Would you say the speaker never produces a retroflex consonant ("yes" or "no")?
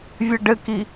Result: no